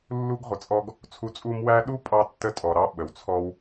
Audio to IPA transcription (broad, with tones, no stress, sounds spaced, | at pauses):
lː u˦ ɡ ʁʷ ə˨ t͡sʼ ɔ˦ ɡ | t͡sʰ u˦ t͡sʼ u˥ m w æ˦ ɗ u˥ pʼ ɑ˦ tː ə˦ tʼ ɔ˨ ɾ ɑ˦ ɓ ə˨ w t͡sʰ ɔ˥ w